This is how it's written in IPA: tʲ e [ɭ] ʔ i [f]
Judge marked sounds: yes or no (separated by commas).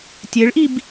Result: yes, no